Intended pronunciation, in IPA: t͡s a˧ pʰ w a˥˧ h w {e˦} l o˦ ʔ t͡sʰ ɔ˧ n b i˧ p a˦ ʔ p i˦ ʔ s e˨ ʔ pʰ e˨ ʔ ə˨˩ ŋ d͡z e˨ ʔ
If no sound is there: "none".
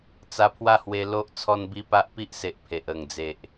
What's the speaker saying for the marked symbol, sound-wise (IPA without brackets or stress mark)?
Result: e˧